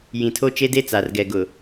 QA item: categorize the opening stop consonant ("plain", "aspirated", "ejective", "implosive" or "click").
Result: aspirated